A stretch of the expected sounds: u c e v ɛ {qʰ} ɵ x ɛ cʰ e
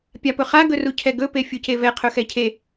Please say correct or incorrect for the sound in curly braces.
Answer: correct